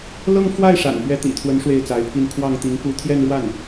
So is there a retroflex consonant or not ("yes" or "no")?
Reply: yes